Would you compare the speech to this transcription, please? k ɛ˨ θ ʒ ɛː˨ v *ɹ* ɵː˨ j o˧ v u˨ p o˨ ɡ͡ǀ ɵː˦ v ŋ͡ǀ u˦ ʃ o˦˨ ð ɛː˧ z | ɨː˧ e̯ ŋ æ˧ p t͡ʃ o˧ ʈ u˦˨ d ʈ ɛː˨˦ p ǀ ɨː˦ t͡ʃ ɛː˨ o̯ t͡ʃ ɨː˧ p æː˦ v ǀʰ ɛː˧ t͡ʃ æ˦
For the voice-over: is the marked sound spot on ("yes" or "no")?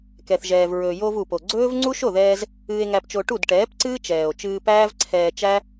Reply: yes